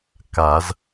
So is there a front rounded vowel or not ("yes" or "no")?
no